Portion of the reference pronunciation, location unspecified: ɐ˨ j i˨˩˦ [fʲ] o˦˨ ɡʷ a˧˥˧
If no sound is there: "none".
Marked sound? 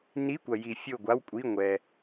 fʲ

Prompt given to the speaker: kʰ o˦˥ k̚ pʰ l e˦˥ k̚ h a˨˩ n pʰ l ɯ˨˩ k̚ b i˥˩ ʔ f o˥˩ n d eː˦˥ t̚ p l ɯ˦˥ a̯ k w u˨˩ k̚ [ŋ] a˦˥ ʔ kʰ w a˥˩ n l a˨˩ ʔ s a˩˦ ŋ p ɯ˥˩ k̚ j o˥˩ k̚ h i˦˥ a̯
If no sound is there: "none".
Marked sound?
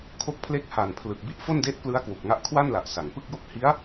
ŋ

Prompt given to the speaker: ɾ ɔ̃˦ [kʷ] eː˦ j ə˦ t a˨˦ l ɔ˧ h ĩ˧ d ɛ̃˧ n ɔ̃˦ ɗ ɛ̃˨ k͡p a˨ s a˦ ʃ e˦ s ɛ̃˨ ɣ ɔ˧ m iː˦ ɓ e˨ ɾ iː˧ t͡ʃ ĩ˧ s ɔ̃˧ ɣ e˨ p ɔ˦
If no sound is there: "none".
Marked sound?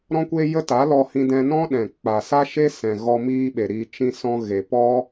kʷ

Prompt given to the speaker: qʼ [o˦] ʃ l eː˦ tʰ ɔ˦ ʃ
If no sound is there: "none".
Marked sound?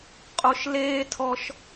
o˦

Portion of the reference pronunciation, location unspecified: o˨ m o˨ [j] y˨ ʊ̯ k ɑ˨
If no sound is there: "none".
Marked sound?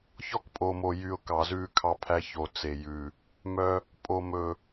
j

